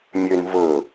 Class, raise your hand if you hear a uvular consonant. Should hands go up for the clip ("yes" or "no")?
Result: no